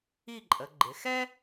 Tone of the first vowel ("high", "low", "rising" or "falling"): falling